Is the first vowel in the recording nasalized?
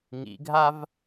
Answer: no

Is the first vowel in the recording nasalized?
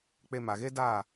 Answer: no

